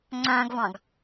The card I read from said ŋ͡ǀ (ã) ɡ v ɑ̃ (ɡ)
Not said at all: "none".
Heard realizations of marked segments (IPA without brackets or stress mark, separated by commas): ã, ɡ